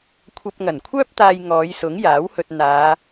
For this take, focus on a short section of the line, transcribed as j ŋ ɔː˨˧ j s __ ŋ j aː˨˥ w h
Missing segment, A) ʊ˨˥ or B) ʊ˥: A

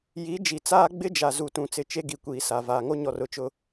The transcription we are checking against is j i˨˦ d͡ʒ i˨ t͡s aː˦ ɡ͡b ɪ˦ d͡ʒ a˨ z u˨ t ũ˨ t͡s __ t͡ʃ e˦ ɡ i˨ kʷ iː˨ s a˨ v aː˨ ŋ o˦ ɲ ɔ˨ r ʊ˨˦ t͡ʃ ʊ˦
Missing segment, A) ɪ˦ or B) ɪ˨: B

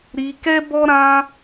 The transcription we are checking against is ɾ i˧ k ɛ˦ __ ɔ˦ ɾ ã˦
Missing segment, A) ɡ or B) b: B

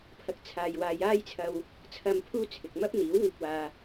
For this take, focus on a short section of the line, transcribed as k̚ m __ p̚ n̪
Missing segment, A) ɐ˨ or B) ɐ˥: B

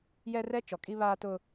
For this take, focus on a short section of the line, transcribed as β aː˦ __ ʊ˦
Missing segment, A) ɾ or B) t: B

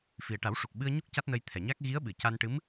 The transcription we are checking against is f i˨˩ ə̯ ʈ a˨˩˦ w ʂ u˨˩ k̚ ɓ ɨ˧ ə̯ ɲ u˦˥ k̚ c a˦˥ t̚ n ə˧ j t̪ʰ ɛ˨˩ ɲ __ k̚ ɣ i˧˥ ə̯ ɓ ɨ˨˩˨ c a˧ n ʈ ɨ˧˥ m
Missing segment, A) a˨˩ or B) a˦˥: B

